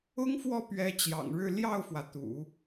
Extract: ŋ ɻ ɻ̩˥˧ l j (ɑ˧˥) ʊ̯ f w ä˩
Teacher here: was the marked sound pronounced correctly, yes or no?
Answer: no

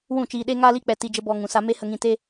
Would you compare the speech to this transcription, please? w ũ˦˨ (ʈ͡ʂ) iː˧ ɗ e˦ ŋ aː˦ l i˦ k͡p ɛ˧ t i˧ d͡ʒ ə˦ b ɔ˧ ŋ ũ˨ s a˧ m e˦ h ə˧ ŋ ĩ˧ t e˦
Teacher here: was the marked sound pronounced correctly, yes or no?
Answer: no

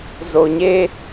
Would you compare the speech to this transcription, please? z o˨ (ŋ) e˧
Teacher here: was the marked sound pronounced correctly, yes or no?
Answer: no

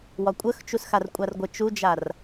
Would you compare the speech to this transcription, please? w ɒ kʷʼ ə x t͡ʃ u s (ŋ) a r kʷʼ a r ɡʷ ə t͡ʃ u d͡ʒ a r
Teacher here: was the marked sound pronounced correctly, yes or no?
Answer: no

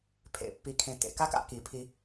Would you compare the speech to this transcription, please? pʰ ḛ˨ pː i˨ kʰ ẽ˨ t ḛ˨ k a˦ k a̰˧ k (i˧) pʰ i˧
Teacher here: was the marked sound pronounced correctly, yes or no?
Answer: no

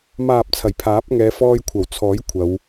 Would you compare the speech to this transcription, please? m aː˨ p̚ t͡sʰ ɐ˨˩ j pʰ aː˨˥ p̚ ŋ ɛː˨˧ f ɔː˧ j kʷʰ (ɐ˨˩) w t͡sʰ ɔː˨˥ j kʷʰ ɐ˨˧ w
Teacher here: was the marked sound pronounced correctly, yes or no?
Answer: yes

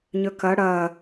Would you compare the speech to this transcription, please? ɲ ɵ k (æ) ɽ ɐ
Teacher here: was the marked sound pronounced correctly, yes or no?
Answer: no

